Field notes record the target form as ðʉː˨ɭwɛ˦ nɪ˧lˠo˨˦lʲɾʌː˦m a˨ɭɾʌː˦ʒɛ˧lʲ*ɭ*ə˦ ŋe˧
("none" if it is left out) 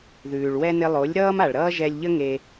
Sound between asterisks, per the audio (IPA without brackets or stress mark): ʎ